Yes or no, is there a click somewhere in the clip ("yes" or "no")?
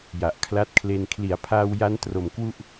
no